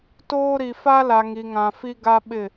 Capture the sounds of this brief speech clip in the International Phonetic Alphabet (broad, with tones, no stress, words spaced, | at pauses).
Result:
toː˦ɾi˨ fa˦la˨ ŋi˨ŋã˨fi˦ ɡa˦ɓɪ˦˨